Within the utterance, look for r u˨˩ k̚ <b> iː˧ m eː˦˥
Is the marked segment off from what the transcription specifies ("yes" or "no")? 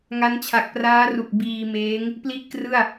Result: no